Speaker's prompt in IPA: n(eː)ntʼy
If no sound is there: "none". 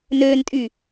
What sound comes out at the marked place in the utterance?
øː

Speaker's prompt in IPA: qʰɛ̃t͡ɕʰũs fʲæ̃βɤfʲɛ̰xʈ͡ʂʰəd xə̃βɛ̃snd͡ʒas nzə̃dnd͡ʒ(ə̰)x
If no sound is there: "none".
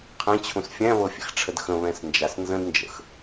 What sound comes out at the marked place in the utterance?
ə̰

